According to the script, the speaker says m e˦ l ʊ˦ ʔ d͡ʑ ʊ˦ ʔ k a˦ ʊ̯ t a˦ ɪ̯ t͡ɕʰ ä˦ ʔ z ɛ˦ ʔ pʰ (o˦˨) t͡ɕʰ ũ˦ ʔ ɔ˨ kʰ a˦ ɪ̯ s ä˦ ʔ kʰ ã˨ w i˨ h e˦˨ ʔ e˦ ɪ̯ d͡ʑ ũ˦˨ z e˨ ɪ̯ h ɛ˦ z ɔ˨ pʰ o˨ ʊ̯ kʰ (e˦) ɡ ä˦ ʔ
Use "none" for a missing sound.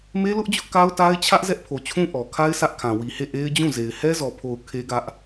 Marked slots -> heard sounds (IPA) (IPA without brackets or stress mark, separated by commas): o˨, e˦